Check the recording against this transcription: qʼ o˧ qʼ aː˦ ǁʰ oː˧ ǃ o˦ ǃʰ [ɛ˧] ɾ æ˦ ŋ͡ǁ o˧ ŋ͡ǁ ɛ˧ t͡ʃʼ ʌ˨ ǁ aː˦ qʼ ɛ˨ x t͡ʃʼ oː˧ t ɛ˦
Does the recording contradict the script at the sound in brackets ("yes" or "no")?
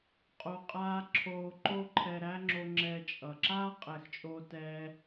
no